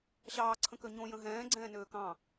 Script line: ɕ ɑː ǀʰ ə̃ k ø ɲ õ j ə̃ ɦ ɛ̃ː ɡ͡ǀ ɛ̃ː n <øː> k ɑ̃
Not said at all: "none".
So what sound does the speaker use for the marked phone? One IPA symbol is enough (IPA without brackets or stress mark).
øː